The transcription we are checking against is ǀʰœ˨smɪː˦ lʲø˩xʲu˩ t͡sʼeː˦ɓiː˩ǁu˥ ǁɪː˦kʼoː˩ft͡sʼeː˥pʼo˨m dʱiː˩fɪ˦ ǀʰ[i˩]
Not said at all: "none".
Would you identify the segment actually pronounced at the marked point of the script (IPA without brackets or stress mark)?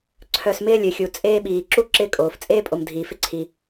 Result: i˩